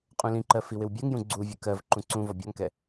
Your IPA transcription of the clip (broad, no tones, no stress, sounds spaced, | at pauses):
qʼ ũ l ĩ ǃ ɜ f i w ɪ w bʲ ɜ ŋ j ũ ɡ͡ǀ u vʲ ə k ɜ v ǃ ũ ǀ ũ v ɔ bʲ ɒ ŋ k ɛ